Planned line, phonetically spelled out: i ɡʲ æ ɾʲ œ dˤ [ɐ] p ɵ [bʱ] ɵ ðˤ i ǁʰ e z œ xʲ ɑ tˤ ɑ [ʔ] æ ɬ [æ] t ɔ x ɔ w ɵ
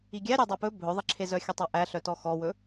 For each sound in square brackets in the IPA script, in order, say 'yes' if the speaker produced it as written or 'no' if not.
no, yes, yes, no

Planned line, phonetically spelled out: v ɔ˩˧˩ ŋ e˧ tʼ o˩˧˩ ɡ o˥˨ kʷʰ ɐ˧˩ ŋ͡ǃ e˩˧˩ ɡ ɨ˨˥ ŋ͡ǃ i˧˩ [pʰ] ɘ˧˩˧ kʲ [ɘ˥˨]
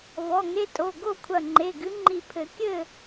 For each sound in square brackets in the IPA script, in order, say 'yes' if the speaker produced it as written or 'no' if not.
yes, yes

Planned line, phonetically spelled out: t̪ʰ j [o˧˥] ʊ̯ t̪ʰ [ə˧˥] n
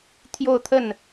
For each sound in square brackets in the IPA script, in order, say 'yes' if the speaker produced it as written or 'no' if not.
no, no

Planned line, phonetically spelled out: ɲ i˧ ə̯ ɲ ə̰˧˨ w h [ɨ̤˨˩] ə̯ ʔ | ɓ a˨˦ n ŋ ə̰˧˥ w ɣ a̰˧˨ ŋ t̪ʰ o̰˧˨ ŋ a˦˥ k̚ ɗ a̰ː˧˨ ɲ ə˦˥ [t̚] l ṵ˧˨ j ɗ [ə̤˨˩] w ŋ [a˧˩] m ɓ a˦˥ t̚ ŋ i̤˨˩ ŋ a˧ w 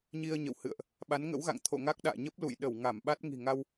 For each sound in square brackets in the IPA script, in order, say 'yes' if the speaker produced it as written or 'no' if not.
no, no, no, yes

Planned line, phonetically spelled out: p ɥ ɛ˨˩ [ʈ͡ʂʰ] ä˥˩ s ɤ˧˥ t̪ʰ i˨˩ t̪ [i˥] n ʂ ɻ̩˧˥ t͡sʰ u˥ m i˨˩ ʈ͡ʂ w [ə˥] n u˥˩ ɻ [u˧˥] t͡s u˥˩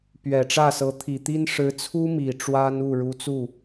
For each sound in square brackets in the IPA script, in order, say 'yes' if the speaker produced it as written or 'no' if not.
no, yes, no, yes

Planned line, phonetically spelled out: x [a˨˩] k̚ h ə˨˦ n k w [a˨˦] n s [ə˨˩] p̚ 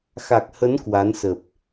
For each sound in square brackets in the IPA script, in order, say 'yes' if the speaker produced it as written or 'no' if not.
yes, yes, yes

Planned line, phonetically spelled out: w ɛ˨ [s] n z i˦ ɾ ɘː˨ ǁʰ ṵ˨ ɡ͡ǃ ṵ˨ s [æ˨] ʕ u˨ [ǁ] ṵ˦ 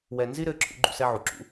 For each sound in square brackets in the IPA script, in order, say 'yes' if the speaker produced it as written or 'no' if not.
no, no, yes

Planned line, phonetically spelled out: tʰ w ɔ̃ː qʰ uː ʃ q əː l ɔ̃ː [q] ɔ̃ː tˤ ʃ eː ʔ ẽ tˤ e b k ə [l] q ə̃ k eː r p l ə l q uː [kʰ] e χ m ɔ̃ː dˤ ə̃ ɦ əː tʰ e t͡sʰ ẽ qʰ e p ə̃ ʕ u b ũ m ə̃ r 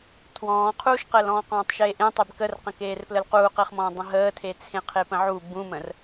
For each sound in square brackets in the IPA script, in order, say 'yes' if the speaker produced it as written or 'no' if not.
yes, no, no

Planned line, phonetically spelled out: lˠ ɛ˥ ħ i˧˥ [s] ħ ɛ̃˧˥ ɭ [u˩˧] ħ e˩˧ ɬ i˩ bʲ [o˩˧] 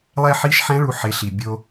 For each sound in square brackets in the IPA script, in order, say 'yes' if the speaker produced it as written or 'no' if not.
no, yes, no

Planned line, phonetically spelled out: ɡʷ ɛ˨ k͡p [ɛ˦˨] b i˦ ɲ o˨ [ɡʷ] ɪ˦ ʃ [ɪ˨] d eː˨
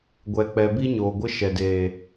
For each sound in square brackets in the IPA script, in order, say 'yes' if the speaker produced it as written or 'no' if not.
no, yes, no

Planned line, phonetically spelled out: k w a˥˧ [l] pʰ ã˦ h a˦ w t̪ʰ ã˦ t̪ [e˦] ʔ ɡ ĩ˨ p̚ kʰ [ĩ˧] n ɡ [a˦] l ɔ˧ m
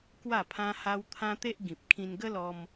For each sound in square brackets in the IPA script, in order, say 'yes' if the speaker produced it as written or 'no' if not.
no, yes, yes, no

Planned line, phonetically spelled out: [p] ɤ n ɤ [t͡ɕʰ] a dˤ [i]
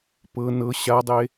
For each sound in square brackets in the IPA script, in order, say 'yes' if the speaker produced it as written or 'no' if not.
yes, no, no

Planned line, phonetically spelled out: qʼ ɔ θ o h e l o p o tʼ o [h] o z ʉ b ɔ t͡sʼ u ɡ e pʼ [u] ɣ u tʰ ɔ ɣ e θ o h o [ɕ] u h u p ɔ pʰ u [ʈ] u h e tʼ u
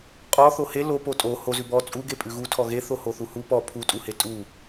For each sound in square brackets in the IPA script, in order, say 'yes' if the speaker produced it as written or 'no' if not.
yes, no, no, no

